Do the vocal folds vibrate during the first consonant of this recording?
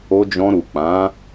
yes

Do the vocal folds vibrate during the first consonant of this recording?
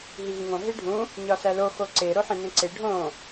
yes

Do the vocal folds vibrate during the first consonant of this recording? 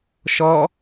no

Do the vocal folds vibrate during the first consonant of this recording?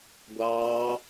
yes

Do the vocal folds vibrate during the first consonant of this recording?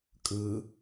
no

